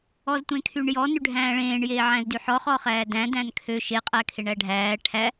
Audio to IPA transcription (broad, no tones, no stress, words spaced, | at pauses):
ɔztʷẽkʰyɳjɔ nʉɖʱæ̃ːɭẽːɳ jeːʕæ̃zdyħɔ χɔχæːdæ̃ dæ̃nkʰø ʃe qʼækʰeɳæɖʱæː ʈʰæ